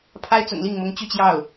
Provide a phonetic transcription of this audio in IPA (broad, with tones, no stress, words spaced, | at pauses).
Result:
pʰa˥ɪ̯t͡sʊ̰˨˩ŋli˥˩ŋmʊ˧˥ŋ t͡ɕy˥˧t͡ɕjɑ˥˩ʊ̯